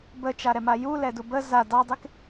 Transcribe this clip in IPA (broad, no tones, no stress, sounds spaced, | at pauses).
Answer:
b ə t͡ʃ a ɾ ɛ m a j u l ɛ d u b ə z a d ɑ dˤ e k